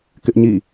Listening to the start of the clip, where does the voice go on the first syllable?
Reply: high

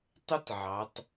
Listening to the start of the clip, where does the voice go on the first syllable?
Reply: high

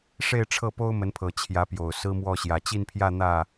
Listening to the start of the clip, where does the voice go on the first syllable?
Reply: falling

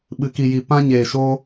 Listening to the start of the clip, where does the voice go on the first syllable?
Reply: low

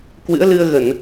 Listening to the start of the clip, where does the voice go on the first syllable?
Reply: rising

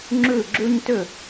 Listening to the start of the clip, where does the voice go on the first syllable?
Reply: falling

